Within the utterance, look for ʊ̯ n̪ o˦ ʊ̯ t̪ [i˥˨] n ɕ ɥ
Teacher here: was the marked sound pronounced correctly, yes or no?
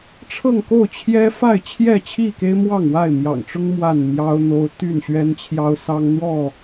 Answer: no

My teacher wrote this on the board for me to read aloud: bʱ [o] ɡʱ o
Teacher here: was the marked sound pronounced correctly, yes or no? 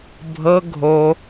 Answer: no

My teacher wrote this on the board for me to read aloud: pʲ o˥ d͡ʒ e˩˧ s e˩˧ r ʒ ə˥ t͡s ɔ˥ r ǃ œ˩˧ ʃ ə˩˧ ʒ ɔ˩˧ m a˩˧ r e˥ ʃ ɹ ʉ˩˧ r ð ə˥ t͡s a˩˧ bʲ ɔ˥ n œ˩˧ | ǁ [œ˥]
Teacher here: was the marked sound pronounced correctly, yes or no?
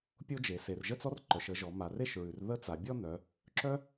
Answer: yes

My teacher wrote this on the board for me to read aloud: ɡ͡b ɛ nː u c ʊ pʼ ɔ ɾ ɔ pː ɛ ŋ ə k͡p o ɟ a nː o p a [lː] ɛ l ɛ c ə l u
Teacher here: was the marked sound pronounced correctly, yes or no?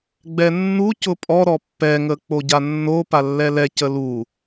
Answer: yes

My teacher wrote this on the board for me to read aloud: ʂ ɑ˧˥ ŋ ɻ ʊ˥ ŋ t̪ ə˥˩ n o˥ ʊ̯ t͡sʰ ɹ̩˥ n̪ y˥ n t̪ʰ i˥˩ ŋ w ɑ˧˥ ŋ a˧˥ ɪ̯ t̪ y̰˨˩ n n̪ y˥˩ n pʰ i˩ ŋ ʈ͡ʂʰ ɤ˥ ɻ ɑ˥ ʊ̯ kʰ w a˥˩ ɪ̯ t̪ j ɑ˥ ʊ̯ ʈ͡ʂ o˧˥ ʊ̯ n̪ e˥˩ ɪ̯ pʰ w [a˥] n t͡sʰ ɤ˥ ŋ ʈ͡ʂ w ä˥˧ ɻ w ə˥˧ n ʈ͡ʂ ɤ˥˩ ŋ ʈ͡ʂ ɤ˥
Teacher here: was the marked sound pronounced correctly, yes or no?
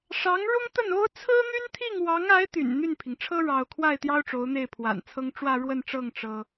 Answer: no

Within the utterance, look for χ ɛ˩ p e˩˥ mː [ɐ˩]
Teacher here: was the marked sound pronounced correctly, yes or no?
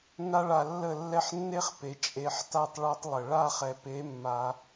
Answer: no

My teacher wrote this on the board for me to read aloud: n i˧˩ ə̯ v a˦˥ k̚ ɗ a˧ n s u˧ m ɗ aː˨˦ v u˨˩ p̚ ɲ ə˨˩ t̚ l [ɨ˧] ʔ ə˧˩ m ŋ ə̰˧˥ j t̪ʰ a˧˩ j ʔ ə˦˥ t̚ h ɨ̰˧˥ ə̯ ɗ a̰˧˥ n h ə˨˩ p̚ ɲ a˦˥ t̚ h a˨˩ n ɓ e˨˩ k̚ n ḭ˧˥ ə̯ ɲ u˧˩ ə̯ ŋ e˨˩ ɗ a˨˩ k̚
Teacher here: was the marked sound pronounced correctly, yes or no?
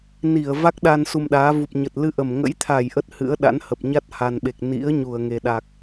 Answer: yes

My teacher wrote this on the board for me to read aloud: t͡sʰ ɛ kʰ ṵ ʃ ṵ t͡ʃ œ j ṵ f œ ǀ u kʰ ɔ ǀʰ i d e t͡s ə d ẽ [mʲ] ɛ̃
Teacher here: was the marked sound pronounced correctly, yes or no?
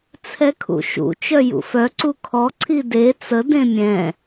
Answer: yes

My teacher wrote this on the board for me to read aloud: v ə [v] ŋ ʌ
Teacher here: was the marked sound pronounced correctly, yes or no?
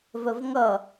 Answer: yes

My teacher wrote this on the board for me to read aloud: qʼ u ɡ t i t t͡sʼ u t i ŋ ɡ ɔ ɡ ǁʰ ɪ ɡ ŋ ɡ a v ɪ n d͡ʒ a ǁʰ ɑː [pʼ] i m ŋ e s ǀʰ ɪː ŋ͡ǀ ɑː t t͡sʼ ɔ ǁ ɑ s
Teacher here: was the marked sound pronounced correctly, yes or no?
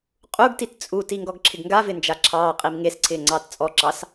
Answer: no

